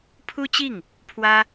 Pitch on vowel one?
high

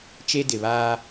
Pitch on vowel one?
high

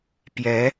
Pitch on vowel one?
rising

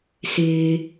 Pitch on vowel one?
low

